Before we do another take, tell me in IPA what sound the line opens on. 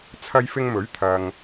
t͡sʰ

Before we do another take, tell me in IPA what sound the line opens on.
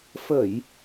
f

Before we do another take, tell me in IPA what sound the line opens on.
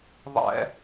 ðˤ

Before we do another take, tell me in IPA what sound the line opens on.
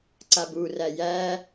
ǀ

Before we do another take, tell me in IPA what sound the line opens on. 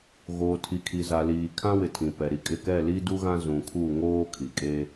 ɣ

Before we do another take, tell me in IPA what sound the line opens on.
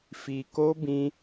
f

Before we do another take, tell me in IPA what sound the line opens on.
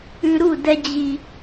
ʉ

